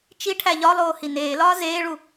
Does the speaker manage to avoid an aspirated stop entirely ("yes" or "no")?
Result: no